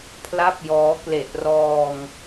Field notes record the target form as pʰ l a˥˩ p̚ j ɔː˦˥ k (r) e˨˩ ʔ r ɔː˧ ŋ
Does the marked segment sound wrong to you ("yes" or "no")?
yes